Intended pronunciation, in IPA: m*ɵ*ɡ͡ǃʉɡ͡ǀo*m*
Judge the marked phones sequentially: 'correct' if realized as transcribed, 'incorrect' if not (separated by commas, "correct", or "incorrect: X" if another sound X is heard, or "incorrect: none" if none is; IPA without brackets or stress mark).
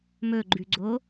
correct, incorrect: none